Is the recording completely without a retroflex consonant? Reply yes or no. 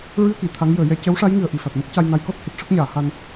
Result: no